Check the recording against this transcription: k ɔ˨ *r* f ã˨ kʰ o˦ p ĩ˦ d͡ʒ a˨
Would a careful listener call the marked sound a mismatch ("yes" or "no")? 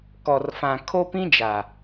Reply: no